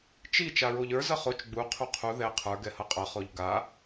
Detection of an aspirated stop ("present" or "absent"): present